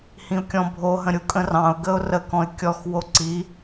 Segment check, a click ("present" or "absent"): present